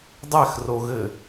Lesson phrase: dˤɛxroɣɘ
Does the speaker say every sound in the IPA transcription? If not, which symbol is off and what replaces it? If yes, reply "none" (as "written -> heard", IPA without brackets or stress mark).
none